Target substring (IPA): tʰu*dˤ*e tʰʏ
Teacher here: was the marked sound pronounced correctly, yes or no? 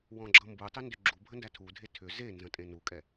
no